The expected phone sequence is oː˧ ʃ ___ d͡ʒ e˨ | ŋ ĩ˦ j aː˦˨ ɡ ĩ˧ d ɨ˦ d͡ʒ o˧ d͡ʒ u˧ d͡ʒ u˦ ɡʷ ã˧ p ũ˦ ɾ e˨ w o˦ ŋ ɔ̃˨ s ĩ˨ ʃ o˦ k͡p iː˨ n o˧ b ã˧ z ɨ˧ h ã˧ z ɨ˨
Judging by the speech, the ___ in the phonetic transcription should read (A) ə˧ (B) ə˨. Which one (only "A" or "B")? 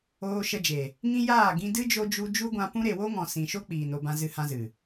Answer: A